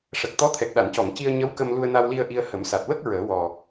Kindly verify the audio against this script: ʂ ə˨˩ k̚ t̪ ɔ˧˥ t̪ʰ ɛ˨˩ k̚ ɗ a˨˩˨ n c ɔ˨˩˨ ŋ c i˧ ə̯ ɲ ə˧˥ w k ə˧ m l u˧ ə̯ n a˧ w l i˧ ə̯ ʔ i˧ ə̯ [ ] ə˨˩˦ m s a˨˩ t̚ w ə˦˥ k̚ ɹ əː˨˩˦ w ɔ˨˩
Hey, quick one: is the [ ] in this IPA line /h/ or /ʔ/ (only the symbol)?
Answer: h